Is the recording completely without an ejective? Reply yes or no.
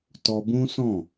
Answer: yes